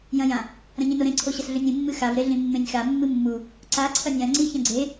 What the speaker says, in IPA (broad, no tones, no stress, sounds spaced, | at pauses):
j ɐ̃ j ã | ɾ ɐ̃ ɲ ĩ n o ɾ ẽ ǀʰ o ɕ ɐ s ɮ ʉ nʲ ĩ mː ɨ x a v ɾ e ɮ ĩ mː ẽ nʲ x a mː ɨ mː u | ǀ a ǀʰ ɐ nʲ ã ŋ͡ǀ i ç ɐ̃ ɡ͡ǀ e